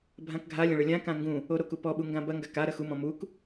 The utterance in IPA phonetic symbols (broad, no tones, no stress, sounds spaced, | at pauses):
bʱ ã k ɡʱ a lʲ ɐ̃ ɭ ɘ lʲ ã k ã ŋ ɡ ũ | o ɾ o k u p ɔ ɓ u ŋ ɡ ã b ɐ ŋ ɡ a k a ɾ ɐ x u m ɔ̃ m u k